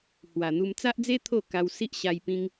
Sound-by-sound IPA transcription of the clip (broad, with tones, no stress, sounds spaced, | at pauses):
h w a˨˩ n̪ u˧ m t͡s a˦ ʔ d͡z e˦ t̪ʰ o˥˧ k a˧ w s i˦ ʔ ɕ a˧ j p ĩ˧ ŋ